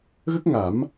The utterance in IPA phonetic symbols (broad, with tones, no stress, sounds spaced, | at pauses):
ɣ ə˦˥ k̚ ŋ a˨˩˦ m